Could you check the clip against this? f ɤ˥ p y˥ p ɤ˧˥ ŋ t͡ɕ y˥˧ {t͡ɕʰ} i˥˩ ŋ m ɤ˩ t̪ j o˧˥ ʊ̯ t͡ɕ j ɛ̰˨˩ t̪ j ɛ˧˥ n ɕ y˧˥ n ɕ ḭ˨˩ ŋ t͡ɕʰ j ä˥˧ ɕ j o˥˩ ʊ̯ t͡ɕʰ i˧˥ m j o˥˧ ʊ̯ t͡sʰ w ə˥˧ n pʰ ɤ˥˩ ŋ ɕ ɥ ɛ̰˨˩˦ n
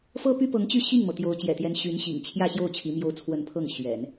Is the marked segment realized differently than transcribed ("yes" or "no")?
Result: yes